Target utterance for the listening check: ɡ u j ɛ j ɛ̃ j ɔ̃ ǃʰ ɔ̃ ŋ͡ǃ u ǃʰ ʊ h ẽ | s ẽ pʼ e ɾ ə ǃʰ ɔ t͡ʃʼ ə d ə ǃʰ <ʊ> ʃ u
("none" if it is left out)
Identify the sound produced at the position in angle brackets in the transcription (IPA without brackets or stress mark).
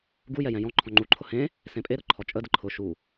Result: ʊ